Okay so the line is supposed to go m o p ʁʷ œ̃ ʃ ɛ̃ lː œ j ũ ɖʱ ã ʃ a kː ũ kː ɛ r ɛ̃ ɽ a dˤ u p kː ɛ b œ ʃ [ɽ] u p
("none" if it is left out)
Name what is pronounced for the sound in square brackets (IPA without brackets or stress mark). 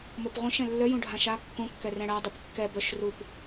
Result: r